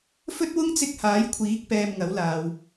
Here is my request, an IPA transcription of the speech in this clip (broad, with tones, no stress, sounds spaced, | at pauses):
f ɵ˥ t̚ w ʊ˥ ŋ t͡s ɪ˧ k̚ h aː˨˥ j kʷʰ iː˨˥ k̚ p ɛː˨ m ŋ ɐ˨˥ w l aː˨ w